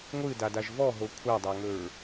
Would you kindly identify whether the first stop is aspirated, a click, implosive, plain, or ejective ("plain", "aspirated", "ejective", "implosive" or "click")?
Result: plain